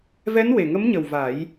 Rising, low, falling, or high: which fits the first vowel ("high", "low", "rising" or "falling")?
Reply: rising